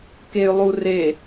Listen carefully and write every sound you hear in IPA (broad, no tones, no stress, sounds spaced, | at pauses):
k e y̯ lˠ u r e